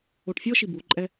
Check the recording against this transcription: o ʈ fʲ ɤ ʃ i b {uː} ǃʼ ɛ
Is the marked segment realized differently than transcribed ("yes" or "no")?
yes